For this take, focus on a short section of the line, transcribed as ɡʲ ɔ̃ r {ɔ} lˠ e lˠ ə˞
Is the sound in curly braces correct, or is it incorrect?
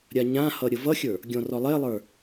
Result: correct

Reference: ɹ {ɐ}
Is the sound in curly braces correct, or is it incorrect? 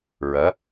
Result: correct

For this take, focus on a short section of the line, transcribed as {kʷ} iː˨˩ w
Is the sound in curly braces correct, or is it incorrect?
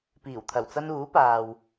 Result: incorrect: p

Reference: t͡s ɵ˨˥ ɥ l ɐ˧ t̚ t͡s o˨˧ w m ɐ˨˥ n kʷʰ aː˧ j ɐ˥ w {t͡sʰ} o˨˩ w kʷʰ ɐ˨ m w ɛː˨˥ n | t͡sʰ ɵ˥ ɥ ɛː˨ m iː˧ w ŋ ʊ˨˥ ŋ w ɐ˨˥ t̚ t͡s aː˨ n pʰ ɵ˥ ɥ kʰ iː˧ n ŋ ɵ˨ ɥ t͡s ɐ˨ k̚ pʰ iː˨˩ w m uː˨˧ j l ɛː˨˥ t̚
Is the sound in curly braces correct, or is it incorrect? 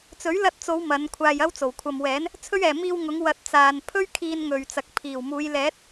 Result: incorrect: t͡s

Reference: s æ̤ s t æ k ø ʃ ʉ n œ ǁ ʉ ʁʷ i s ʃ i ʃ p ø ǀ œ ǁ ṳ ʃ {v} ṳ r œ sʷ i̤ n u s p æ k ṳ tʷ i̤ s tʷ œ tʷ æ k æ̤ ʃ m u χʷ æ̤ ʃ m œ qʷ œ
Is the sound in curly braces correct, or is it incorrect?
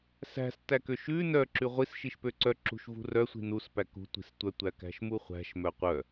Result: correct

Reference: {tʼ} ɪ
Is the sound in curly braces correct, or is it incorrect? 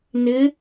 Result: incorrect: n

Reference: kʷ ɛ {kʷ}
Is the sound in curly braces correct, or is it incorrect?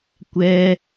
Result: incorrect: none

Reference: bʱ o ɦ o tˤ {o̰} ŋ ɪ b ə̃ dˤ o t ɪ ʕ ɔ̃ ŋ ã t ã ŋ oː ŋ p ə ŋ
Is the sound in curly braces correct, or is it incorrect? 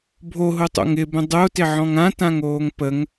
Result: correct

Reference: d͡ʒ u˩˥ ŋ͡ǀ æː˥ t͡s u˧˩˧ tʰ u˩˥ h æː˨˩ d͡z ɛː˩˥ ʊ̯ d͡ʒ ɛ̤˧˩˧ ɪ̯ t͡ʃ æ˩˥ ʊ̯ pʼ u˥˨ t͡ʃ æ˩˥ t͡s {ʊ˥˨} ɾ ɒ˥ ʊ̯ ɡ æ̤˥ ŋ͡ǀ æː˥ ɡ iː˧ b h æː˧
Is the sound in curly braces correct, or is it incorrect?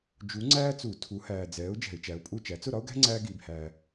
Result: correct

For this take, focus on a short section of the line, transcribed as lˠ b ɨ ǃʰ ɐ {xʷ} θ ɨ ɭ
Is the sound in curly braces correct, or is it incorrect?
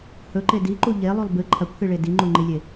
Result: incorrect: kʷ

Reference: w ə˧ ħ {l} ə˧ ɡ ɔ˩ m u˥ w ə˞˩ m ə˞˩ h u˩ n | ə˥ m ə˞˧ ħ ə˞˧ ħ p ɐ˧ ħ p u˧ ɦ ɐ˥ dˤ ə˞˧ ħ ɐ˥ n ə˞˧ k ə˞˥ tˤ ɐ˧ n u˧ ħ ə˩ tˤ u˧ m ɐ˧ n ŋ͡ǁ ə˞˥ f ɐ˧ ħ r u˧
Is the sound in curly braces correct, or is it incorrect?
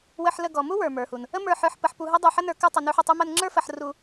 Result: correct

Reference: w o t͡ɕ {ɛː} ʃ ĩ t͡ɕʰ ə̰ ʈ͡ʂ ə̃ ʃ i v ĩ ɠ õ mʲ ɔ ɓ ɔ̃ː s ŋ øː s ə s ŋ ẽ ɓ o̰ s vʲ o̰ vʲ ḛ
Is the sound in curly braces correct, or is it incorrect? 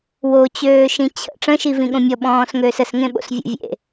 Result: incorrect: øː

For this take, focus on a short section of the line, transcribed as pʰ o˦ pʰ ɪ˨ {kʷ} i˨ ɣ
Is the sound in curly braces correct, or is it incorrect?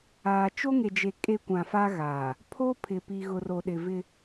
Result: incorrect: p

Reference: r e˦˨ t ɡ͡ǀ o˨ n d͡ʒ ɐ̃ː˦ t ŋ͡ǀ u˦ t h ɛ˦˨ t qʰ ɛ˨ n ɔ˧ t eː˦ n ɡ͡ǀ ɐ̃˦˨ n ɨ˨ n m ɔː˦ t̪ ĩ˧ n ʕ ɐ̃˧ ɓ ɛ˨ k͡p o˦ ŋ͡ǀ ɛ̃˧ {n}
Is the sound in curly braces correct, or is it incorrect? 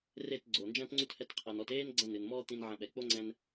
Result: correct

